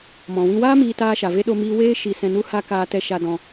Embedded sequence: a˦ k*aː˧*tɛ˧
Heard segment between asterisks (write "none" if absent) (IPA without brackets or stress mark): aː˧